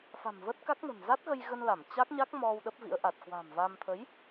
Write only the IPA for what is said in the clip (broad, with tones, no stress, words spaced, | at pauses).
fa̤˨˩mvə˦˥t̚ka˦˥k̚nə̤˨˩n za˦˥t̚ɣə˧jɣə˧nla˧˩m t͡ɕa˦˥k̚ɲa˦˥k̚ mɔ˧w ɗə˦˥p̚vḭ˧˥ə̯ʔa˨˩t̚ kwa̤˨˩mva˧m t̪ʰə˨˦j